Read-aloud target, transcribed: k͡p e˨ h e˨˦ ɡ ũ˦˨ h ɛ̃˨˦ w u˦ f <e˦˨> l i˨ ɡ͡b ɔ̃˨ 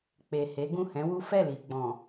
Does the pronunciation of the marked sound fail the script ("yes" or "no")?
yes